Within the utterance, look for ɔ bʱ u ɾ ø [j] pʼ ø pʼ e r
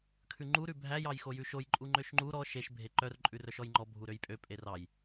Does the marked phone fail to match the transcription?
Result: no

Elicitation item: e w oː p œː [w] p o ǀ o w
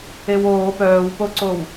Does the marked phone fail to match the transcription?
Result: no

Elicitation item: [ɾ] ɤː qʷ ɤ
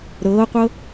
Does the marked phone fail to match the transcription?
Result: no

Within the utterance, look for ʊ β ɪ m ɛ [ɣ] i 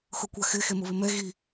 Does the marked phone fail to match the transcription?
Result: no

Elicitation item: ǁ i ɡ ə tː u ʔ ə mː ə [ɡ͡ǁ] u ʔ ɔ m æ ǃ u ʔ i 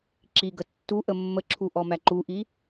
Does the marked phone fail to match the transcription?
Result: yes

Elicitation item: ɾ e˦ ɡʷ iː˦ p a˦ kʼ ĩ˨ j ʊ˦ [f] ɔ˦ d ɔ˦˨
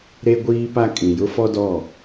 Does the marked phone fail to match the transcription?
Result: no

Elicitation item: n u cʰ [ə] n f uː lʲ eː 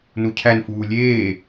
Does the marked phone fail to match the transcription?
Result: yes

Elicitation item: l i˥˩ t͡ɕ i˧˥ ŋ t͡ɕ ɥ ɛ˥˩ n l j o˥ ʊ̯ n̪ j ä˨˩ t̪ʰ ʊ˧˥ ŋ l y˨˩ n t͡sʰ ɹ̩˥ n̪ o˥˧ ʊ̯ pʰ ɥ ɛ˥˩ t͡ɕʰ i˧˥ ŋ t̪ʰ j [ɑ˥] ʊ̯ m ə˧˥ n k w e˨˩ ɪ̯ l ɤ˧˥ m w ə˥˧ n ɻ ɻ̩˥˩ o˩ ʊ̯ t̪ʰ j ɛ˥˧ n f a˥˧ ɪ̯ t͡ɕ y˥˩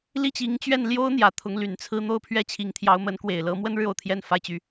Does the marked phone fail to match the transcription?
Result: yes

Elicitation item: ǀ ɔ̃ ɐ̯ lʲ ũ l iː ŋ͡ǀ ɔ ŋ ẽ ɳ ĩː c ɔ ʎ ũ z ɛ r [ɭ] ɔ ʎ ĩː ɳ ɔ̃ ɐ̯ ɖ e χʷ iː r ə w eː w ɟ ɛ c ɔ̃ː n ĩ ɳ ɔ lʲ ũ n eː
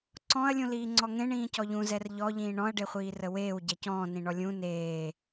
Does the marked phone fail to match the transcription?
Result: yes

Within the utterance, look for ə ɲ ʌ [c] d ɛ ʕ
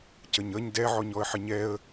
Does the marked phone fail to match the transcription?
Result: yes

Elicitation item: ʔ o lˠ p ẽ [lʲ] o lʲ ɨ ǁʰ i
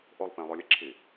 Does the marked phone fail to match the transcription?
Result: yes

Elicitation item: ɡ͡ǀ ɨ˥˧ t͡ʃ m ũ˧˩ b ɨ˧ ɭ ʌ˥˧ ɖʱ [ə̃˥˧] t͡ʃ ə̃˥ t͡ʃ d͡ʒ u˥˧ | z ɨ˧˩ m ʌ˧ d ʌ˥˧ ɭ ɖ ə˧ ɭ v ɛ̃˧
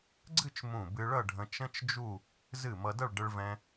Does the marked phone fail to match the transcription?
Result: yes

